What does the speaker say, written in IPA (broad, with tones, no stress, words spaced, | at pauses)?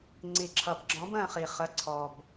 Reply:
ŋ͡ǀi˩ǁʰʌ˩bɡ͡ǁɔ̃˨˥bə̃ː˦˨ χi˩ χə˩˧˩ ǀʰɔ˩b